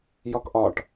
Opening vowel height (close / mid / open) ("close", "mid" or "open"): open